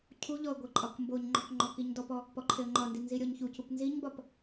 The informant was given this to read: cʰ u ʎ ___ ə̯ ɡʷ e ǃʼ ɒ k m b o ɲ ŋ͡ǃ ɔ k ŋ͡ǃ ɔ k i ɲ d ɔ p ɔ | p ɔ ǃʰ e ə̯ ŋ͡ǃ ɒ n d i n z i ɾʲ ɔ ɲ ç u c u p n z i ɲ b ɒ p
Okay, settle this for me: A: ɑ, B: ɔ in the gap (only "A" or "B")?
B